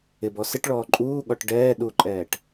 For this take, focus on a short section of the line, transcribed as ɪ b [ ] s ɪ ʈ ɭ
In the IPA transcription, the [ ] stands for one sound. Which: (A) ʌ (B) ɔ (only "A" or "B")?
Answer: B